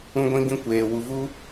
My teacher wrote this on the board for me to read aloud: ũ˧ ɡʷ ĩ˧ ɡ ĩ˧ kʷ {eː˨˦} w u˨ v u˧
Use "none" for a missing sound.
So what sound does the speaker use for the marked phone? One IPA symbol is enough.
eː˨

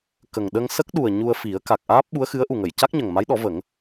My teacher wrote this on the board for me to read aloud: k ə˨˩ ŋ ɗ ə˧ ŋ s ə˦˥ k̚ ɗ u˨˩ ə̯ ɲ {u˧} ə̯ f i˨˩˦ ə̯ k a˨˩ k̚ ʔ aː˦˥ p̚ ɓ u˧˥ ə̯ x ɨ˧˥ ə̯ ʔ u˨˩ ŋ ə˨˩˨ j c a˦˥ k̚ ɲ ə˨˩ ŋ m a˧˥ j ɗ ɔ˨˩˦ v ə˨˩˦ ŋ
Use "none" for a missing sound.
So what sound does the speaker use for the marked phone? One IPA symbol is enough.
u˧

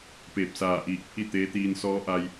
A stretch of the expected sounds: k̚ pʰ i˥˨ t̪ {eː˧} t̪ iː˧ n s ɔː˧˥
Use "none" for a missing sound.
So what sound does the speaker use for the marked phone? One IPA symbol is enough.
eː˧˥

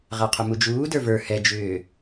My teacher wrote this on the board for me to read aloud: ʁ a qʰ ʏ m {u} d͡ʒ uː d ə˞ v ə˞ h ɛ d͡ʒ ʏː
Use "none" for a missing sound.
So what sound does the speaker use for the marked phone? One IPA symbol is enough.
u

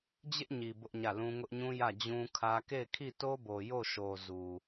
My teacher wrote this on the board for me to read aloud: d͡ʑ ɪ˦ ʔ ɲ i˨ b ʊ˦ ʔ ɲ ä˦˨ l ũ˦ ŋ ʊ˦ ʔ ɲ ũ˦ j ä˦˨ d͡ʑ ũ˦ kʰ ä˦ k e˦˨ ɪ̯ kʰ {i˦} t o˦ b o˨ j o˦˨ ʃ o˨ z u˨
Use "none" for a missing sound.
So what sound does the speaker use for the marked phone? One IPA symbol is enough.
i˦˨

